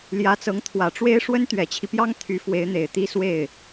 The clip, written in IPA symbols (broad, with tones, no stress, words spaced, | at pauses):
ljä˧˥t͡sɤ˧˥ŋ t̪ʰwä˨˩ʈ͡ʂwe˥ɪ̯ ʂwə˥n t̪ɥɛ˨˩t͡ɕʰi˦pjɑ˥ŋ t̪ʰy˧˥ fwe˧˥ɪ̯n̪e˨˩ɪ̯t̪i˥ swe˥˩ɪ̯